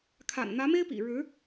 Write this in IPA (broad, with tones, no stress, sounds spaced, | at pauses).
kʰ a̰˨˩ n n̪ ä˧˥ m e˥ ɪ̯ p ḭ˨˩ ɻ ɻ̩˧˥